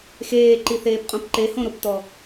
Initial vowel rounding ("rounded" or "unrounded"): unrounded